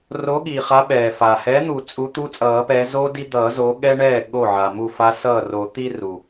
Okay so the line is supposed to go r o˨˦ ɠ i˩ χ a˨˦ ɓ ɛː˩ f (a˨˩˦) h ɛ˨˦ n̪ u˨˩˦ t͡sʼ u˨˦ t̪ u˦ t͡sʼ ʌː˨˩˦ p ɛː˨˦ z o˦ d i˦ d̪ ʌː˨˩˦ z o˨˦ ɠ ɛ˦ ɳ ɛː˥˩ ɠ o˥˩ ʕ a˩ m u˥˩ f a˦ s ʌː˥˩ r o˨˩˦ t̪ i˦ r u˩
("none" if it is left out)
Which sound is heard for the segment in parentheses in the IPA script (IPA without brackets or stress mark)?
a˩